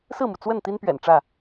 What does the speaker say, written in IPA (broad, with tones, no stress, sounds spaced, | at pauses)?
s ɹ̩˥˨ m u˩ t͡s w ə˥˨ n t̪ i˦ n p ɥ ɛ̰˨˩ n ʈ͡ʂ ä˥˨